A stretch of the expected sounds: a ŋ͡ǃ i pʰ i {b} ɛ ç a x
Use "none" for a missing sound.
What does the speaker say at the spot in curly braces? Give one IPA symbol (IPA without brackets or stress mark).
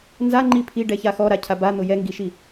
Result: ɖ